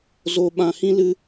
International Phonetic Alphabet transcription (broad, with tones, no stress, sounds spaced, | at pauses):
z o˧ ɓ ã˨ h ĩ˧ l ɨ˦